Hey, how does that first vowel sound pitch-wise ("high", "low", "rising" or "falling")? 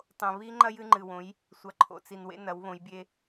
low